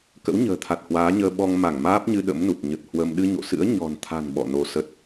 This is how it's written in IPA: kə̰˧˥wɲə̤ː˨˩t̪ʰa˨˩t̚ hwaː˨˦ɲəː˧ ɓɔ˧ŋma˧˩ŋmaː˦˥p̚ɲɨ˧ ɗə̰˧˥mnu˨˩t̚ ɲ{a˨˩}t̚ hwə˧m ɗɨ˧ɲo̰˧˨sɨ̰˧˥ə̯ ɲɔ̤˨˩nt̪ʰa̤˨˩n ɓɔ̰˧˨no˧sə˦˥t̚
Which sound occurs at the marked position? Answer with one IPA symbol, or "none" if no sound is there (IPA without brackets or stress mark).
ə˨˩